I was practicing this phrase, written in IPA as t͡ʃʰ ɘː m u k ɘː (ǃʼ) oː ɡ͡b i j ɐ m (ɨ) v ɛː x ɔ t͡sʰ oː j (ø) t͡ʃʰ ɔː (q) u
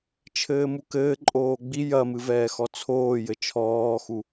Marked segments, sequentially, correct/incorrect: correct, correct, incorrect: ɘ, incorrect: x

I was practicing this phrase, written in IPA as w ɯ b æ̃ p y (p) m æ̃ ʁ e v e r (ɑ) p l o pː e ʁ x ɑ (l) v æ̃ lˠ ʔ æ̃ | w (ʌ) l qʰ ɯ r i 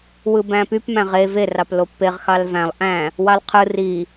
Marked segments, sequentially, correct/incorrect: correct, correct, correct, incorrect: ɑ

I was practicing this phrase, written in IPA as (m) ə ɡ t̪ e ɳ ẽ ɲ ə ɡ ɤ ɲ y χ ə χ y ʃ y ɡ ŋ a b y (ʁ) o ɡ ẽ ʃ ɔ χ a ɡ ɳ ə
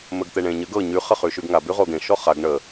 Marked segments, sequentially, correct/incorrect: correct, correct

